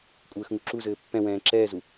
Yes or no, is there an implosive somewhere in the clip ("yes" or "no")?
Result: no